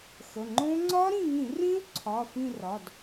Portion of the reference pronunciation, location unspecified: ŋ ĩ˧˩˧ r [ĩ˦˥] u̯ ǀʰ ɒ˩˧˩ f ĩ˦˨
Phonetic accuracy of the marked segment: correct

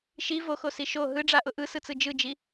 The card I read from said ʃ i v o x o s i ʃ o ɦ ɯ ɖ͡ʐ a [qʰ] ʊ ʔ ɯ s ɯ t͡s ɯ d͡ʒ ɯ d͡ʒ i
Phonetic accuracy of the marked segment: incorrect: ʔ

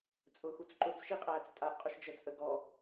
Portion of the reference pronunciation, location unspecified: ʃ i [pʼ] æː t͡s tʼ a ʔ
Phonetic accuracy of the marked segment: incorrect: qʼ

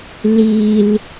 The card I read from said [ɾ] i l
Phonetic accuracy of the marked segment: incorrect: l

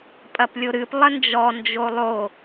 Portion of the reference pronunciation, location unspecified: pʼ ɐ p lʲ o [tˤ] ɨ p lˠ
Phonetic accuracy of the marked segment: incorrect: ɾ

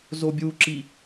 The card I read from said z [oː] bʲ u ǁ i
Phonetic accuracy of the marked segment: incorrect: o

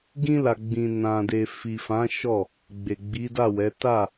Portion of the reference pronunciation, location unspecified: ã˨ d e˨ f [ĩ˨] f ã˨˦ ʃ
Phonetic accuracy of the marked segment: incorrect: i˨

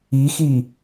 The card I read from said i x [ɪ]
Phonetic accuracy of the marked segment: incorrect: i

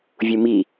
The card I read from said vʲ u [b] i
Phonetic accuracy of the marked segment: incorrect: m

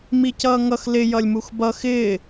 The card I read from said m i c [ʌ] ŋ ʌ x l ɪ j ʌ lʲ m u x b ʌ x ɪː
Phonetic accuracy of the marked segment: incorrect: ʌː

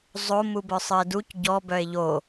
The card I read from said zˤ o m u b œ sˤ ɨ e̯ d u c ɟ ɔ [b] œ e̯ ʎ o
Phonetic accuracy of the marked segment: correct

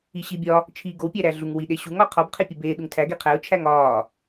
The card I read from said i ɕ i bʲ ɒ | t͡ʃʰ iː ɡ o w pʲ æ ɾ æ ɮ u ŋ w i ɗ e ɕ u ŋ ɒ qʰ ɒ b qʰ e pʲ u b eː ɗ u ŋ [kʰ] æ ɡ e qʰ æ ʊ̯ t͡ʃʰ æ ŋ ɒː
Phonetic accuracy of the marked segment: incorrect: tʰ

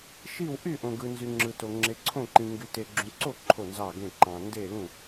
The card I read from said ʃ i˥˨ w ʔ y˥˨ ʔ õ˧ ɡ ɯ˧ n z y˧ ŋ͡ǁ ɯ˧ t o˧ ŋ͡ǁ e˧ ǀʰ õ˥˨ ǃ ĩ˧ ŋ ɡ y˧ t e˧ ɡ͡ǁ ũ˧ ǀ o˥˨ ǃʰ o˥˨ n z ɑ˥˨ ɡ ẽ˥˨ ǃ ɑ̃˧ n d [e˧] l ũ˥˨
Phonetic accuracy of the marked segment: incorrect: e˥˨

